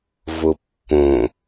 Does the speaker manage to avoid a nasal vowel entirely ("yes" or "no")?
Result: no